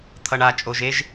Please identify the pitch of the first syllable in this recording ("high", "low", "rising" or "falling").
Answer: low